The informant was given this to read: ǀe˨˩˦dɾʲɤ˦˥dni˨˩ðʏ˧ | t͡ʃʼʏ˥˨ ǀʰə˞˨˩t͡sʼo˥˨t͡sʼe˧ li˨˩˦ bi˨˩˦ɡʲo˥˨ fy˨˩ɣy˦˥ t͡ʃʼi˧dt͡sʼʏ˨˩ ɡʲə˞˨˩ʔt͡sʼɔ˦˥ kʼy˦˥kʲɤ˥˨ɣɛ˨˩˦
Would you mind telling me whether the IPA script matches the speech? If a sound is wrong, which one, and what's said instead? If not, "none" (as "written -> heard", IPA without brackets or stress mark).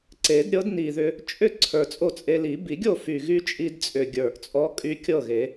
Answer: ɛ˨˩˦ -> e˨˩˦